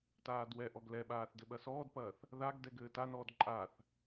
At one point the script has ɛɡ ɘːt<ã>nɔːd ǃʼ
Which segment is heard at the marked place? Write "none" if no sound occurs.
a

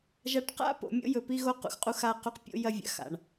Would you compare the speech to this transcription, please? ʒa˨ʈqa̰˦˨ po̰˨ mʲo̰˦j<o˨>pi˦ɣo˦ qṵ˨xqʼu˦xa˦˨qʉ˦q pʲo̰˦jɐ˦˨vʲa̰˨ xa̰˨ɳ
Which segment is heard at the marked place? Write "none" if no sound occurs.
ɵ˨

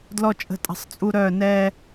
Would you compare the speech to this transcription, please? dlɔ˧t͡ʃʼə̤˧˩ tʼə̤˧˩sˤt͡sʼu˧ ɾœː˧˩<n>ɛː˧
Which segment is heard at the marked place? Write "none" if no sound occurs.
n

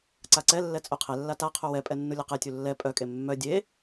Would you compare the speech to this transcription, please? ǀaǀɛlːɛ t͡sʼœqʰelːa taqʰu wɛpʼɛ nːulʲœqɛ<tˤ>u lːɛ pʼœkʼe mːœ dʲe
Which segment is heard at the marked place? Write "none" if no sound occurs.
tʲ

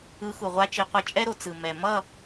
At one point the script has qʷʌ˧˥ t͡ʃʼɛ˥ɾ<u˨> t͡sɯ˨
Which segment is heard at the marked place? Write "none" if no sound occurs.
o˨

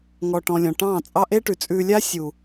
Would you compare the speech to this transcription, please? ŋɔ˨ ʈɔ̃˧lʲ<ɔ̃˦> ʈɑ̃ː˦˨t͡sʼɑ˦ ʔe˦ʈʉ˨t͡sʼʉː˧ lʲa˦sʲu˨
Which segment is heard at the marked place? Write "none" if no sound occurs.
ɔ̃˨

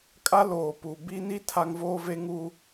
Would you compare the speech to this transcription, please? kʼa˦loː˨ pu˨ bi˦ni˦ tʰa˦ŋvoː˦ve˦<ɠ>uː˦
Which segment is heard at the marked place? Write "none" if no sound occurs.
ŋ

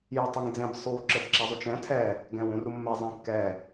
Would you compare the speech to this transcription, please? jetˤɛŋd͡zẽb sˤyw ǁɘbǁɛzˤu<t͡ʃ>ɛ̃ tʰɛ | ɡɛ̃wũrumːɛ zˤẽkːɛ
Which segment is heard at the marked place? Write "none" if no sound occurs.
t͡ʃ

